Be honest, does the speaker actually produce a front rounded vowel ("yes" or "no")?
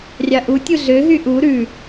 yes